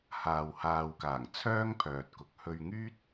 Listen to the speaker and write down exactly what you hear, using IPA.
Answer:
h aː˨ w h aː˨ w k aː˨˩ ŋ t͡sʰ œː˥ ŋ pʰ œː˨ t̚ k ʊ˨˥ k̚ h ɵ˧ ɥ ŋ yː˥ t̚

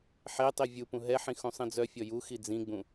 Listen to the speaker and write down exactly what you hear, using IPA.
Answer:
ħ e tˤ i vʲ u p ũ ɦ ɛ ħ ĩ x ũ sˤ ĩ d͡z œ fʲ ɔ j u x i d͡z ĩ ɡ͡b ũ

